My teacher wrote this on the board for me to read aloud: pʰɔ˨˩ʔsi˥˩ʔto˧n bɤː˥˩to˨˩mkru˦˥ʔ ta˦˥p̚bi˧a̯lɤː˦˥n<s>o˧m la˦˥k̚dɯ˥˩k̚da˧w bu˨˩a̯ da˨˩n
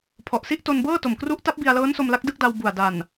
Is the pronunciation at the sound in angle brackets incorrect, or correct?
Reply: correct